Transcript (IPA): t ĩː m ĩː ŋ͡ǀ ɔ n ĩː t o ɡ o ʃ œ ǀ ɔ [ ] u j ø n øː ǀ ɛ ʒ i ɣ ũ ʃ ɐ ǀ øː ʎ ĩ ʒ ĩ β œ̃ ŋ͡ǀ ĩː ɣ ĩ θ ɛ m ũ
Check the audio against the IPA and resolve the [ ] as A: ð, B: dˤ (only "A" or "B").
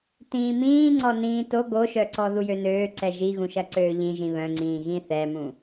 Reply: A